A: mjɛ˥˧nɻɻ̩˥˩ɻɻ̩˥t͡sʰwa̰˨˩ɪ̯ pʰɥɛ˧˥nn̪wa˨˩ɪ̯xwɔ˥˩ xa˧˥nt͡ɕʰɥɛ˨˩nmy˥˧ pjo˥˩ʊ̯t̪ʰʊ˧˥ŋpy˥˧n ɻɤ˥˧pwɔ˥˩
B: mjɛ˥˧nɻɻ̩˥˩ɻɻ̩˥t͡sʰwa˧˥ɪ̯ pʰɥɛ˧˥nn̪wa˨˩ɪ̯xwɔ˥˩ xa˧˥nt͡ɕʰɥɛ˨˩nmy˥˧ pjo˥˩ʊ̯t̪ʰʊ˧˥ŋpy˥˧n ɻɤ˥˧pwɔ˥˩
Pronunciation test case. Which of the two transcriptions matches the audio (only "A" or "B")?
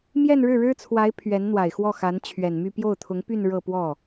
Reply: B